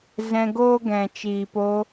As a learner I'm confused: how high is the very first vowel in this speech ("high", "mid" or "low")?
mid